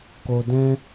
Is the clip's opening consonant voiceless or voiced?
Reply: voiceless